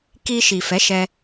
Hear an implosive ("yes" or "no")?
no